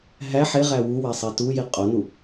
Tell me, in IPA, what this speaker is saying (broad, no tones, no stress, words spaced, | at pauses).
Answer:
ɦæ ħeʁæ wuwesˤe tuji qʼonu